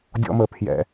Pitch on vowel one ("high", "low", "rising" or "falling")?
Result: high